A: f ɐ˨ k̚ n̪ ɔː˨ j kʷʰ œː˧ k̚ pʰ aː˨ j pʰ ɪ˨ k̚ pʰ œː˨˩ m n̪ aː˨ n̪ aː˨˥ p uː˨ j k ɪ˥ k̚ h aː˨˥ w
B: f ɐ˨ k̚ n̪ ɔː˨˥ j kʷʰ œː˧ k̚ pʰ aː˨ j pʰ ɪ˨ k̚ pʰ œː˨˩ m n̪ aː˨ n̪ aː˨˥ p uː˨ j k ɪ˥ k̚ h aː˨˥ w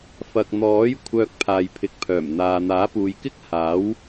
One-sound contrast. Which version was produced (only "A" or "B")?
B